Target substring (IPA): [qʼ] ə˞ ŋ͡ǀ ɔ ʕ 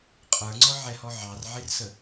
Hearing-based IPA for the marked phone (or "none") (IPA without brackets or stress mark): qʼ